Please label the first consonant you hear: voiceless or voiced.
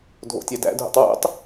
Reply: voiced